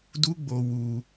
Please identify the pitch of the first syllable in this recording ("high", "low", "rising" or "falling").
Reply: high